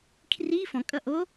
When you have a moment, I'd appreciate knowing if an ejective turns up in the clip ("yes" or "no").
yes